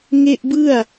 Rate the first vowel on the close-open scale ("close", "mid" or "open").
mid